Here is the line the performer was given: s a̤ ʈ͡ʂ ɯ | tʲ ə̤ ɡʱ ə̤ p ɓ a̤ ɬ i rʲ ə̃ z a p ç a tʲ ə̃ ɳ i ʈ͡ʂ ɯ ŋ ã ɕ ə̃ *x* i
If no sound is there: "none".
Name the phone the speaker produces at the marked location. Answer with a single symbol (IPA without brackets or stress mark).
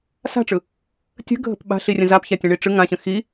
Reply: x